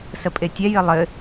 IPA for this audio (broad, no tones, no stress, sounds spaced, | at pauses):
s ə pʼ e tʲ ɛ j ɘ lˠ ɘ